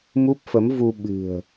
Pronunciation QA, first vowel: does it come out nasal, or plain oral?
oral